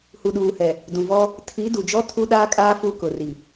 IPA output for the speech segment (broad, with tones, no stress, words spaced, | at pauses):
hu˨ɗuː˨hɛ˨ | dũ˨vɔ˦ | tʰi˨˦ du˨d͡ʒɔ˦ tʰu˦ɗaː˦kʼaː˦ fu˦kʊ˨ri˨